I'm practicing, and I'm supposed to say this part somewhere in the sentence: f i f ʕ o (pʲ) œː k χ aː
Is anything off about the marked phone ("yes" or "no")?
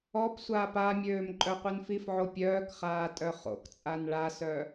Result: no